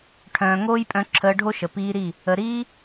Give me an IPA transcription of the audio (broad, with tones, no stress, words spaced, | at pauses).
ʈʰœ̃ː˨ŋoː˦jpʼœ̃˧ ǁʰəː˧ɖʱo˦ʃə˨ piː˧ɾi˦˨ | ə˨ ɾiː˧